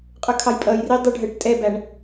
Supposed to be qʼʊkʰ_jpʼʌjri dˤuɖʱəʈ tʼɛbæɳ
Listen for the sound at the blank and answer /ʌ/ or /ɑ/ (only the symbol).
ɑ